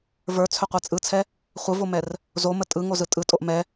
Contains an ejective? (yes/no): yes